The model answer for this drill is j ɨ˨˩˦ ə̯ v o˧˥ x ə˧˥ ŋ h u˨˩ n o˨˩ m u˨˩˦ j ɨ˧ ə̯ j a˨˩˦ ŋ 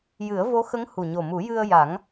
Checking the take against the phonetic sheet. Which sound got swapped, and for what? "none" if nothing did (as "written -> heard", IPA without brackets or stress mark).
n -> ɲ